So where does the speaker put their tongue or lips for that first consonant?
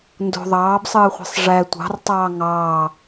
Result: tongue tip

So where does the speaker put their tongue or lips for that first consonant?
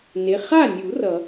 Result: tongue tip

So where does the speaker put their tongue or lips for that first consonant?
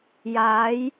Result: palate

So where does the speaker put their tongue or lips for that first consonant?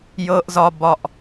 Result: palate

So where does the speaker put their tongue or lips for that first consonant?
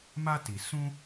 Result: lips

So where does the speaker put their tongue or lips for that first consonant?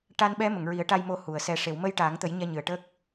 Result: retroflex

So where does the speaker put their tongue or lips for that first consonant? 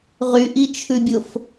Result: uvula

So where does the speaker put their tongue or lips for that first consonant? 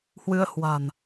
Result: throat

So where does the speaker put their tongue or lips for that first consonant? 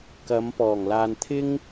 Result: velum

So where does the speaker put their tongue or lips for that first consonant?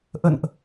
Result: throat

